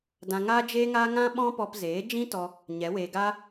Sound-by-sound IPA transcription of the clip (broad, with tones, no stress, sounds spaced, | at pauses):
d ã˧ ŋ aː˦ d͡ʒ eː˦ ŋ aː˦ ŋ ã˦ ɓ ɔ̃˦ p ɔ˧ p z eː˨˦ d͡ʒ ĩ˦ t ɔ˧ | ɲ ɛ˨˦ w eː˧ ɡ aː˦